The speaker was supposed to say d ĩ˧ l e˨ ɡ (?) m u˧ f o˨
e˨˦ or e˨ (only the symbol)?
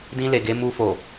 e˨˦